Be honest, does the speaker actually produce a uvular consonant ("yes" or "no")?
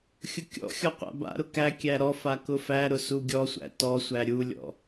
yes